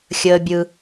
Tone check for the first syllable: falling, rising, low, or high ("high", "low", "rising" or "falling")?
high